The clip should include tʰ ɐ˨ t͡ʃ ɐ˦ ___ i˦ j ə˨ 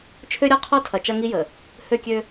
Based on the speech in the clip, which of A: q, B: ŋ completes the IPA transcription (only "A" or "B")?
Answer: B